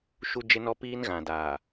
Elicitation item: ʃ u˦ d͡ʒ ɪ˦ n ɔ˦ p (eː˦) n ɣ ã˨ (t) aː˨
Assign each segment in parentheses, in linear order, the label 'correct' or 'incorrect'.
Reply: incorrect, incorrect

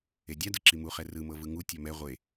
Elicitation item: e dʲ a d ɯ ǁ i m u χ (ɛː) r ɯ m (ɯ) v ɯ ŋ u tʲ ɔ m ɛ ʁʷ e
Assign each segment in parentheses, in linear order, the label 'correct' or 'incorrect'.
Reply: incorrect, incorrect

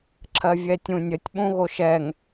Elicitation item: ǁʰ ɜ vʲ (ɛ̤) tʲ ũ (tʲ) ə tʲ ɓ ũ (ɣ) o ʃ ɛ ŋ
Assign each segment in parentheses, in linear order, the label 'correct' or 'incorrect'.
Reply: incorrect, incorrect, correct

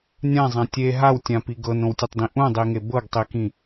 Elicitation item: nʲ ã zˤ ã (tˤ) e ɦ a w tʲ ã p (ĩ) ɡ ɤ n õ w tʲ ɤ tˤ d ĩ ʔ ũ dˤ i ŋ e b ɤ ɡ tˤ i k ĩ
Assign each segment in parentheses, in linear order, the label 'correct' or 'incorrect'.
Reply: incorrect, incorrect

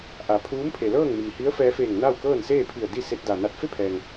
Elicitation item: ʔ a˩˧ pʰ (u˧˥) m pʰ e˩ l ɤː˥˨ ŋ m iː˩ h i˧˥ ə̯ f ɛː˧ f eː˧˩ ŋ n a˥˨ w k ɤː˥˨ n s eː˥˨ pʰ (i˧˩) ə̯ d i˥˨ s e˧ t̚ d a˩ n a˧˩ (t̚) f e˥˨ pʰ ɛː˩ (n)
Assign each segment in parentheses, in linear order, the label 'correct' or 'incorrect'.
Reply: incorrect, correct, correct, incorrect

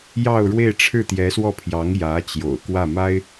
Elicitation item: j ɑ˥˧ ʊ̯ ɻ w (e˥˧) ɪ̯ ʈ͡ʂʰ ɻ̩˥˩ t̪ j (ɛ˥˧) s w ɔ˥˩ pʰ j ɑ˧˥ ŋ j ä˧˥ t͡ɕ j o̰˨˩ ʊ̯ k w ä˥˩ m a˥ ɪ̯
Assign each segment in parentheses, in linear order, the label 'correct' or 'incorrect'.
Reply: correct, incorrect

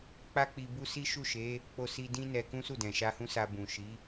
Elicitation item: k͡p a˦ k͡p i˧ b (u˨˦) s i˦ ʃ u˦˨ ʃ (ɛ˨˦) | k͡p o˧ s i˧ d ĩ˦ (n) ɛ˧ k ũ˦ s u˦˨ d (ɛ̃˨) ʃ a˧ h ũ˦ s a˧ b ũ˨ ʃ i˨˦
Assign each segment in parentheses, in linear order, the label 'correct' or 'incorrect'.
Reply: incorrect, incorrect, correct, correct

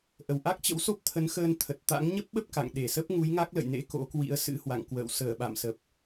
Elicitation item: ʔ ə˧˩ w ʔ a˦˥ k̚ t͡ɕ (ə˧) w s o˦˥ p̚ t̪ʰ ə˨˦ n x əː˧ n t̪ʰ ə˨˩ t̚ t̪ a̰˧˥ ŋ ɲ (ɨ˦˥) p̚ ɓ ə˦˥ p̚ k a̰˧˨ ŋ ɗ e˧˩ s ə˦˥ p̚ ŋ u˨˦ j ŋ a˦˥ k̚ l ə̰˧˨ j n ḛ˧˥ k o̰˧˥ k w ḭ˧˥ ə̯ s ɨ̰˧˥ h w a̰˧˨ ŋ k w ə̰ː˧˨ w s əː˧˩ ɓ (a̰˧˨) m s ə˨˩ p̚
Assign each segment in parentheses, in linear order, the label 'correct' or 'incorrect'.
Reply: incorrect, incorrect, correct

